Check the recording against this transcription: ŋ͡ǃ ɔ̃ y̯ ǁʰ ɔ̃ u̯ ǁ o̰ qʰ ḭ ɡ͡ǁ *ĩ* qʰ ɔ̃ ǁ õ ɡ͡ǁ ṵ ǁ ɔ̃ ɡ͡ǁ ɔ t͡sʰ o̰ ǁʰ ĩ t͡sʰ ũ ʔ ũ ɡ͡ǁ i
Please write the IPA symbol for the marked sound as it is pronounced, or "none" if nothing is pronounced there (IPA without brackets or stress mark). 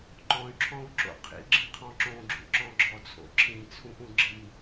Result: ĩ